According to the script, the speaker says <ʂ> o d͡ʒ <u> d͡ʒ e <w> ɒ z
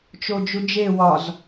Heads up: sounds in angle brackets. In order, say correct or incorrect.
incorrect: t͡ʃ, correct, correct

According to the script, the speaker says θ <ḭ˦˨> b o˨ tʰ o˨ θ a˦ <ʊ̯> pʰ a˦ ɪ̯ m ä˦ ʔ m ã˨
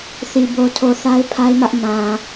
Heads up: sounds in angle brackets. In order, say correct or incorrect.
incorrect: i˨, incorrect: ɪ̯

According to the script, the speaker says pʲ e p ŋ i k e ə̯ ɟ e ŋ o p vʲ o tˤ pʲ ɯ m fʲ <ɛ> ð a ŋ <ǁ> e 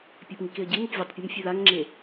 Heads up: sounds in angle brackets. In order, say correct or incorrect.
correct, incorrect: ŋ͡ǁ

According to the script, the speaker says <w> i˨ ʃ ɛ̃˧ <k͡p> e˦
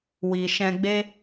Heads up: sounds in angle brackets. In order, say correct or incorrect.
correct, incorrect: ɡ͡b

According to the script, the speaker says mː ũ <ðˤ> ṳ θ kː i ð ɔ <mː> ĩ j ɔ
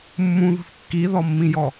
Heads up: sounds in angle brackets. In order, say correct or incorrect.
incorrect: ð, correct

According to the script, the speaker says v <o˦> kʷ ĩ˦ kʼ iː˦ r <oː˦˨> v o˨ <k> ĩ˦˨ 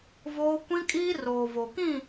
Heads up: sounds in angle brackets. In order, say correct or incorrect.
incorrect: oː˦, incorrect: oː˨, correct

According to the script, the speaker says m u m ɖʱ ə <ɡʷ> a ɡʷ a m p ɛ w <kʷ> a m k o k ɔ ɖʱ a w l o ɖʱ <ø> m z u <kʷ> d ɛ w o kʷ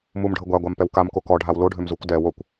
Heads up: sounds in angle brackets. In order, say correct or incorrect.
correct, incorrect: k, correct, correct

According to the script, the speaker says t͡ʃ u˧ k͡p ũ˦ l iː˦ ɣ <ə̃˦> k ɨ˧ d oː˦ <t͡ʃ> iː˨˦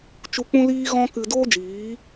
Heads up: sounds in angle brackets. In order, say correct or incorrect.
incorrect: ɔ̃˦, incorrect: d͡ʒ

